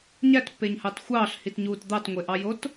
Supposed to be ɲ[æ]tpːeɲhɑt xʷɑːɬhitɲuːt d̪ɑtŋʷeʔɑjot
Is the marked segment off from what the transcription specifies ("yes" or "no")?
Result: no